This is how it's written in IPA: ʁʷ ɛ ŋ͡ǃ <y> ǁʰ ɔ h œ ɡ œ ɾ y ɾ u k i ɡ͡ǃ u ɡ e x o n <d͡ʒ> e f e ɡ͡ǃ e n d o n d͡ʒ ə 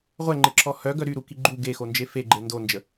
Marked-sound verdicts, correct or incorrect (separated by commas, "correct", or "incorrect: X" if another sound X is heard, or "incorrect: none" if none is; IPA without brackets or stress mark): incorrect: e, correct